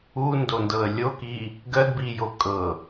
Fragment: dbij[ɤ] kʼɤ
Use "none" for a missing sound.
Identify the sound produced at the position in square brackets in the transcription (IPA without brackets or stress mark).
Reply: o